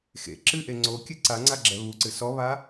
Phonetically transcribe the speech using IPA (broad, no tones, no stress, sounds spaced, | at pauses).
x ḛ ǁ ɨ ʔ e ŋ͡ǀ o kʲ ɨ ǀ a ŋ͡ǀ a ɡ͡ǁ ɛ β u ǀ ɨ s ɔ β a